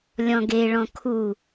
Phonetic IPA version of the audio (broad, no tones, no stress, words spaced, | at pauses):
lʲɔ̃ɡeɭɔ̃ kʰu